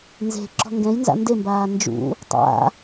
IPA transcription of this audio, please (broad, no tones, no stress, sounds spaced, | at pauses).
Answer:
n z e̤ ǁ ɔ̤ ŋ ɡ ɛ̃ j n z a̰ n d e m b aː n d͡ʒ ṵ | tˤ a̰